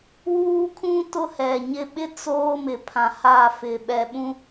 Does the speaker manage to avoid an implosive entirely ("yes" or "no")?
no